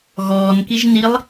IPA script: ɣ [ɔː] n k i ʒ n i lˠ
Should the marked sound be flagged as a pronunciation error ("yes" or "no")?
no